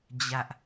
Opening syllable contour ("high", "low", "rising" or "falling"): high